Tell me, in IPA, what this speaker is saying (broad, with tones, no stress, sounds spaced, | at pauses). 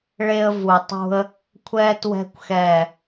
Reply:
ɭ e˥ ə̯ v u˧ tˤ ṳ˥ ə̯ | kʷʰ ɛ˥ t w ɛ̤˥ kʷ x ɛː˥˨